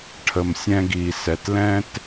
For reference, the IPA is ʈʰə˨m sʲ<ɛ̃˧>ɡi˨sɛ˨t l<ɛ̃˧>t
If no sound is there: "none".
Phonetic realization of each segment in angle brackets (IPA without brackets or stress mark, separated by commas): ɛ̃˧, ɛ̃˧